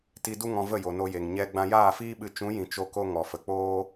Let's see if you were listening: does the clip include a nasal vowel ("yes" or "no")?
yes